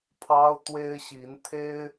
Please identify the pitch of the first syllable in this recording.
high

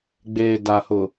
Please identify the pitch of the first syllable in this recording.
low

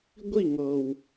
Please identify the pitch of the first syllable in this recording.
falling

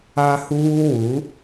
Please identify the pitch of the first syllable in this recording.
high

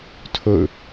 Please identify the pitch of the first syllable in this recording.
falling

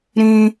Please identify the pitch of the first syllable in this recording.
high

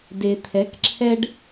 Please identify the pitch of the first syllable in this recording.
low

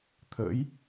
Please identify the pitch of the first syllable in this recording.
rising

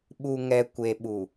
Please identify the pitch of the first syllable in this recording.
low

